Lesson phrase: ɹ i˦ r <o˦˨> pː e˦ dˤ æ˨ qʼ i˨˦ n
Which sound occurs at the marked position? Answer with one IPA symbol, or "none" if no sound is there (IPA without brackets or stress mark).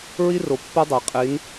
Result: o˨